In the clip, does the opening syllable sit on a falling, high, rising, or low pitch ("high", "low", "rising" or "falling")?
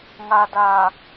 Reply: low